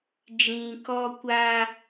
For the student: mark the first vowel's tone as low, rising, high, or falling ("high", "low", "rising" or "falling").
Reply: low